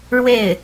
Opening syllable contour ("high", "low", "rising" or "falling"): falling